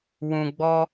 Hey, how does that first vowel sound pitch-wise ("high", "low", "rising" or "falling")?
low